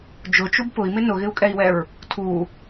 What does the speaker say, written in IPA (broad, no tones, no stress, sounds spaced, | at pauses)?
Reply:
d͡ʒ ʊ t͡ʃ u b p ʊ i̯ m ɪ n ʊ ɣ ɪ u̯ kʼ ɛ i̯ w ɛ ɹ | tʰ u